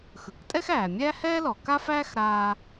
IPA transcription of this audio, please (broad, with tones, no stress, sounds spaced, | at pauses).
x ɯ˩ k tʼ ɛ˥ x æː˩ mʲ æ˥ h ɛː˥ l ɔ˩ k a˥ f æː˥ x ɾ aː˧